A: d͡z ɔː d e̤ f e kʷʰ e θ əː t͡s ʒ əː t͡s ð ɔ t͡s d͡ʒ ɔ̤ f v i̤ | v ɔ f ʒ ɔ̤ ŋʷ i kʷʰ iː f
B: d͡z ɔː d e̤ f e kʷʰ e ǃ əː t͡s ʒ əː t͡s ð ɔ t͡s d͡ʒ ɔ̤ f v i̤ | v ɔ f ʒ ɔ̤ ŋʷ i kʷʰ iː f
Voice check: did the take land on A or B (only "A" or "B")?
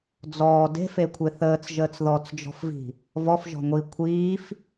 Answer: A